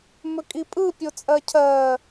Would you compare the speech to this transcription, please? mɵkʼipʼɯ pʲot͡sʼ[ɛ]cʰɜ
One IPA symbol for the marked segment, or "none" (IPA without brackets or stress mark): ɜ